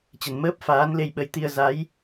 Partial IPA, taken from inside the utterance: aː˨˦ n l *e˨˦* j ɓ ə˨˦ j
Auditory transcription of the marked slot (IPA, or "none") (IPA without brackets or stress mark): e˧